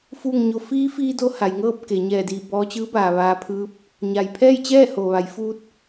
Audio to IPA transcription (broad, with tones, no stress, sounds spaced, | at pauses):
f uː˥˨ ŋ ɲ o˧˥ f iː˧˥ f iː˧ d o˧ h a˩˧ j ŋ ɤː˥˨ p̚ k e˩˧ ɲ ɛː˧˩ d iː˧˩ b ɔː˧ t͡ɕ ɯː˧˥ b aː˩ ʋ aː˧ pʰ ɯː˧˥ p̚ | ɲ a˩ j pʰ ɛː˥˨ j t͡ɕ ɛː˥˨ h o˩ ʋ a˩˧ j f uː˧ t̚